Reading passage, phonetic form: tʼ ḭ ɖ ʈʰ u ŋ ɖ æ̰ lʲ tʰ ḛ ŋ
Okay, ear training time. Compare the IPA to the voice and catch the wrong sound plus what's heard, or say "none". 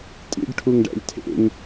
none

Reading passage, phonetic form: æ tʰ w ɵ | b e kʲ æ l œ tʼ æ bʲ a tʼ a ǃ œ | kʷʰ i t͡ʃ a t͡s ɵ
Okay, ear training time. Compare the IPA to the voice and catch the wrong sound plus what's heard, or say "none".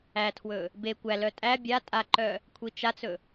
kʲ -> kʷ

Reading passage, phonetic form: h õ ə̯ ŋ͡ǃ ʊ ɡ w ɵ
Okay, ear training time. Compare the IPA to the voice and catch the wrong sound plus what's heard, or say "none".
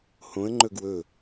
ʊ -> ɵ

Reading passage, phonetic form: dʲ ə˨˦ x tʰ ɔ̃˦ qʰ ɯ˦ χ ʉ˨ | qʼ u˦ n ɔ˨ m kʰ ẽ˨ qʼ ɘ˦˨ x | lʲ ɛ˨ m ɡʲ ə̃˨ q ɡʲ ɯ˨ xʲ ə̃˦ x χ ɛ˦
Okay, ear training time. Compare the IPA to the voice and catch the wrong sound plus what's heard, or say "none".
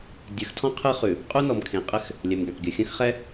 none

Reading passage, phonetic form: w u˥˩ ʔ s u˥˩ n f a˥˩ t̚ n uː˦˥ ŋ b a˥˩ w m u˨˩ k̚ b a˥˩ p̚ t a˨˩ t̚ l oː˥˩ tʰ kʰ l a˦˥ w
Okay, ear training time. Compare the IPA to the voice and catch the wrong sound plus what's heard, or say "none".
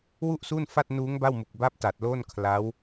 tʰ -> n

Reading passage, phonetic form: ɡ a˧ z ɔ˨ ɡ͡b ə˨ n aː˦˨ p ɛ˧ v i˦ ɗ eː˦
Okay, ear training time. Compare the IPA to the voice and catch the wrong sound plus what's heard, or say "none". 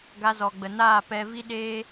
none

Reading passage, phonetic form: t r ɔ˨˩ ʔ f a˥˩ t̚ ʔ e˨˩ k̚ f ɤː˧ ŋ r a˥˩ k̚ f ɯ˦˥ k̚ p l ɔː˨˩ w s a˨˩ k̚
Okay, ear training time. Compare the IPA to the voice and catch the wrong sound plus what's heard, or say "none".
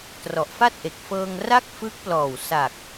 none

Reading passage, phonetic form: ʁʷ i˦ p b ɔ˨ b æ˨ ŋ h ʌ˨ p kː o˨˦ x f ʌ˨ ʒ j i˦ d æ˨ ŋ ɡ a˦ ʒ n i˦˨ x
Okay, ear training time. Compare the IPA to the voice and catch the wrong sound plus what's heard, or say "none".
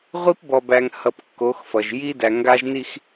none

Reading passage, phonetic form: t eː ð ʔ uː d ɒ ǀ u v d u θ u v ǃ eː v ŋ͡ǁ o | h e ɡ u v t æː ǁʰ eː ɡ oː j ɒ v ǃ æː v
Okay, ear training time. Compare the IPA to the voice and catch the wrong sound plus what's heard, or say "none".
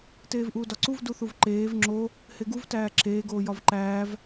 ð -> v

